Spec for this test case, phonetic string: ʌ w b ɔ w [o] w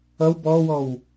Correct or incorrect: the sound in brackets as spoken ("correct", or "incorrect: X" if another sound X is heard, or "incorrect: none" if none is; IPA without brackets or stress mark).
incorrect: ɔ